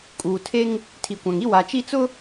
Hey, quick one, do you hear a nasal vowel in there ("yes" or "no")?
yes